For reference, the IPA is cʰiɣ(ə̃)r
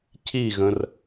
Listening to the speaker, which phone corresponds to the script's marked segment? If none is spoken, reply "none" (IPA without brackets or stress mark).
ə̃